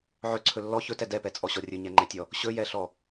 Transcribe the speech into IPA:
ʕɵǀʰɵ lːɔ çɵtɛ dɛpɛt͡sʼɔɕɔ rʲɵɲɛŋ͡ǃɛtʲɔ | ɕɵjɛɬɔ

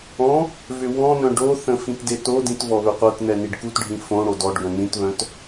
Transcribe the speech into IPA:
ɔ̃ | vʏwɔ̃nœ̃ ɖoθə̃ fĩtdetodĩt vɔβʏqʷœtnɛ niɖkutɖʱĩ fõɽo dɔɖɡœ̃ nĩtβœ̃t

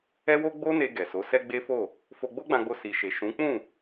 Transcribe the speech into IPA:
ɛ˦wo˦ ɡ͡bo˦ne˧ ɡɛ˨so˨˦ sɛ˦ɡ͡be˦fo˦˨ | fo˧ ɡ͡bo˦ɡ͡bã˧ɡ͡bo˧ si˨ʃe˨ʃũ˨˦ k͡pũ˦˨

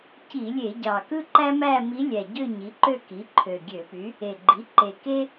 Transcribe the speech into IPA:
ci˧˩˧lʲe˧˩˧ɟɑ˨˩ kɯ˥ǃæ˥mæ˥˧mi˧˥ lʲæ˨˩ɟø˥˧ ɲi˩˥ǃø˥˧ki˩˥ ǃʰø˨˩ɡʲø˧˩˧py˩˥ | e˨˩ ɡ͡ǃi˩˥ǃe˨˩ke˥

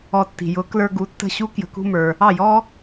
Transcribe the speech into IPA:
ɔ˧ tːi̤˩jʊ˩˥klə˞˧ɡu˩˥ tːə̤˥˩ɕu˥kjə̤˧ kṳ˧mə˞˩ | ɑ˥˩jɔ˥

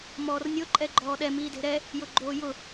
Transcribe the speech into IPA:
mɔːrnʲʊ ǃʼɛɡ͡ǃɔːɗɛ miːde̤ɾɛ | jʊɡ͡ǃoːjʊ

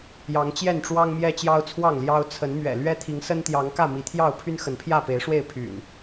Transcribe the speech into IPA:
jɑ˨˦ŋt͡ɕjɛ˥˨nʈ͡ʂwɑ˦ŋ mjɛ˦t͡ɕjɑ˦ʊ̯t͡sʰwɑ˥˨ŋljɑ˦ʊ̯ t͡sʰə˨˦nmɥɛ̰˨˩ lɥɛ˦t̪ʰi˨˦ŋsə˦n t̪jɑ˨˦ŋ kä˥˨mi˨˦t̪ʰjɑ˥˨ʊ̯ pʰy˦n xə˨˦npʰjä˥˨pe˨˦ɪ̯ʂwe˥˨ɪ̯ pʰy̰˨˩n

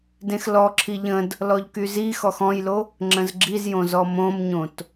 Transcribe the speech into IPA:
dẽxlɔǁʰi ʎə̃d | lɔʎkyzixɔx ɔ̃jlo | ŋ͡ǁə̃zɡ͡ǁizjõ zɔmõmɲõt

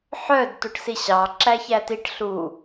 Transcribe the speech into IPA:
ħœd tuʈsiɕɑ ǁæçætiʈ ɬu

